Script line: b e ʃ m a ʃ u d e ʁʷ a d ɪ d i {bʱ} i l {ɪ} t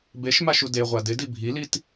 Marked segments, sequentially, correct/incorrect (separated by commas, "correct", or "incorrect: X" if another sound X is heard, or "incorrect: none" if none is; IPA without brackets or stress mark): correct, incorrect: i